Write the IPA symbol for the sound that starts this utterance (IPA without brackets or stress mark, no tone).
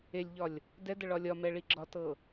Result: e